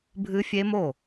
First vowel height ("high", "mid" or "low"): high